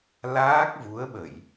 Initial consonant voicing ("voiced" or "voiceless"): voiced